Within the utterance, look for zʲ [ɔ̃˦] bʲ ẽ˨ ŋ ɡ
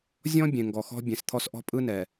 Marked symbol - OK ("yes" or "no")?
yes